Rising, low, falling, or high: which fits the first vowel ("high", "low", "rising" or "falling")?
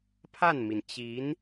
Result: falling